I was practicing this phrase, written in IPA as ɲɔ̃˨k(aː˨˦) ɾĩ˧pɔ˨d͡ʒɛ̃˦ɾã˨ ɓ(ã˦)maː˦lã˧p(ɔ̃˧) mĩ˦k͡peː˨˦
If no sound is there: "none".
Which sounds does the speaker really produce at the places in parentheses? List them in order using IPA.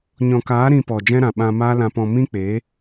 aː˨˦, ã˧, ɔ̃˧

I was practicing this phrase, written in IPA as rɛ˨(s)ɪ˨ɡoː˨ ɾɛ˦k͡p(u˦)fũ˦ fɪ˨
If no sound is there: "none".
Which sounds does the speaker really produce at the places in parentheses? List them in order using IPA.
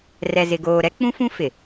z, ũ˦

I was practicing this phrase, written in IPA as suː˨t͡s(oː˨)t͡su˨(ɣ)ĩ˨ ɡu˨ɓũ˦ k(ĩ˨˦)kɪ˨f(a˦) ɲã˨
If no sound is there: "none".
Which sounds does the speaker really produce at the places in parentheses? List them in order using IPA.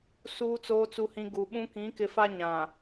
oː˨, h, ĩ˨˦, a˦

